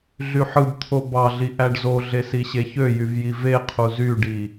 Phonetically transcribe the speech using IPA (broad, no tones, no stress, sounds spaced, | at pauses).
ɮ y ħ ɯ b t̪ʰ o b ɑ ɮ i ʔ æ ɖ z o ɮ e s i ɕ e ç ø j y v j i v e qʰ u z y ɖ i